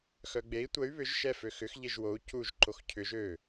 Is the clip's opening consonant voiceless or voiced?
voiceless